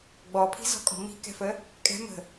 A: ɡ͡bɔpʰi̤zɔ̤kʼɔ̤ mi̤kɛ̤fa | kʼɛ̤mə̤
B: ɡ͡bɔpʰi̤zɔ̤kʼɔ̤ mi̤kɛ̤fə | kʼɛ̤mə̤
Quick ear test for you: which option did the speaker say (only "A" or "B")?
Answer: B